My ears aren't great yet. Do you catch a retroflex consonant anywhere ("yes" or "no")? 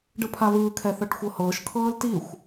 yes